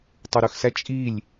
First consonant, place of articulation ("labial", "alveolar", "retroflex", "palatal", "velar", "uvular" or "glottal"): alveolar